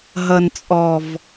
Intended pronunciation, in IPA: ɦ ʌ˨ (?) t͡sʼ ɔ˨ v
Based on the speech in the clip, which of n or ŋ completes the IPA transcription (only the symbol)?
n